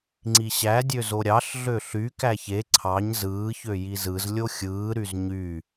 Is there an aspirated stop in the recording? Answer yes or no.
yes